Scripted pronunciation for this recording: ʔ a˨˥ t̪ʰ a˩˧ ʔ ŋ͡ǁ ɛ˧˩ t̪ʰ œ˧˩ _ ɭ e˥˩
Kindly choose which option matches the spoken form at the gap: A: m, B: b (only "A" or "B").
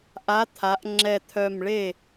A